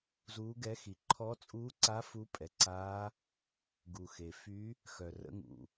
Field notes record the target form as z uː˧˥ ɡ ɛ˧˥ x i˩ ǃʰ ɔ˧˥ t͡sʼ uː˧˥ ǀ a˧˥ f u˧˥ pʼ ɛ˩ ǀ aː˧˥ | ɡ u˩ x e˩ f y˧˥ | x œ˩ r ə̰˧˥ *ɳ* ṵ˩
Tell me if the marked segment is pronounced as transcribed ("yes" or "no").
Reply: no